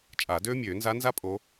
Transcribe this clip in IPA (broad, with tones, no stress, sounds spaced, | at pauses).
t͡ʃʼ a˨˩˦ d øː˥ mʲ øː˨˩˦ n z a˧˥ n z a˥ pʼ o˧˥